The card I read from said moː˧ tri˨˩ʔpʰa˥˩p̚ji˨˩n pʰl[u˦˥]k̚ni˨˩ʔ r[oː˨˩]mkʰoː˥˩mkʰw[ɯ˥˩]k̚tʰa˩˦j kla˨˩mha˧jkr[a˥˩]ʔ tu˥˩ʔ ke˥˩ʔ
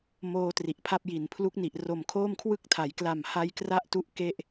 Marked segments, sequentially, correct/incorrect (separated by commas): correct, incorrect, correct, incorrect